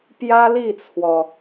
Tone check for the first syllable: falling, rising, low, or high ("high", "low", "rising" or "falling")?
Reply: high